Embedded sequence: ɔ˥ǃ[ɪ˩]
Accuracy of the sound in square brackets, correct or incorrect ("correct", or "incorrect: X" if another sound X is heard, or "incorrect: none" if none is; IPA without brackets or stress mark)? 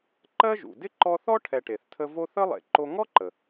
incorrect: ə˩